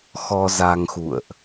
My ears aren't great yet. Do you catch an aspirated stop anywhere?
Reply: no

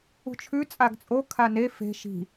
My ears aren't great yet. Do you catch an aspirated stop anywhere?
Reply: yes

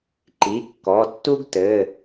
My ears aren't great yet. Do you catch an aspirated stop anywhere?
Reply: no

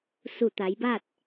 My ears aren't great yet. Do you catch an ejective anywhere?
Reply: no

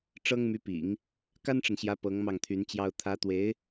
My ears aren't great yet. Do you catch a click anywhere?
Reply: no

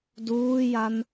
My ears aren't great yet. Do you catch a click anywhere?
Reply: no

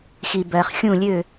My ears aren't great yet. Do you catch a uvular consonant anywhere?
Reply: yes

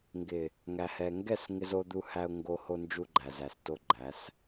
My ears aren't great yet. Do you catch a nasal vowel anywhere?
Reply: no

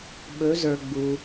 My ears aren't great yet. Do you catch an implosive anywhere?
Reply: yes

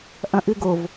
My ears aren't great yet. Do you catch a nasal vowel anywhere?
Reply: yes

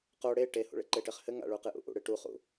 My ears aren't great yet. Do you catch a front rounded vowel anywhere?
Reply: no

